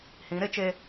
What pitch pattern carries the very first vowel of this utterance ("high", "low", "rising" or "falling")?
rising